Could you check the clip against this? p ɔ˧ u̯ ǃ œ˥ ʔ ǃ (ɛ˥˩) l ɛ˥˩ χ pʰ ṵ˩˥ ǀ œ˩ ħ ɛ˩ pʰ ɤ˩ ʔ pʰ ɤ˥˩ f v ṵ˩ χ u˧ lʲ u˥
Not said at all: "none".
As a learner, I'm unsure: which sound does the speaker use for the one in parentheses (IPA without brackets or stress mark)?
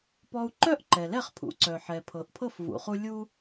ɛ˩